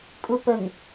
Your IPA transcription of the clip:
kʼ u p ə ŋ

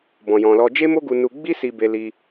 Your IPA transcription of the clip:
b ɔ̃˨ j ɔ̃˨ l ɔ˧ d͡ʒ e˦ m o˦ ɡ u˧ n u˧ ɡ͡b i˦ s i˧ b e˧ l i˧

